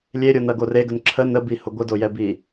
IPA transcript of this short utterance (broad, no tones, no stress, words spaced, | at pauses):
lʲeɾʲonɐɡo reɡən ǁʰə nəbihʊ ɡʷədojɛbi